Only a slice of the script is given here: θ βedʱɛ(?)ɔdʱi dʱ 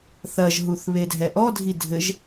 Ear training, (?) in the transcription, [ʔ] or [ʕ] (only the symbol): ʔ